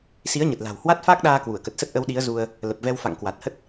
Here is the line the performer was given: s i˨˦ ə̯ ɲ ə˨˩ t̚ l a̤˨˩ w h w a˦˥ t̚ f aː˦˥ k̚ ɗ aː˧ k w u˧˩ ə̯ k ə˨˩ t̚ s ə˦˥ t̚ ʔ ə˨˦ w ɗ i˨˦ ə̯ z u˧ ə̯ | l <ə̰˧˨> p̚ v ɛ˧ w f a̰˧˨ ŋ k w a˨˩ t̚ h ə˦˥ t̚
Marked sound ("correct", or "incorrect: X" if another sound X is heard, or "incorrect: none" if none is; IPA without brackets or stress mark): incorrect: ə˨˩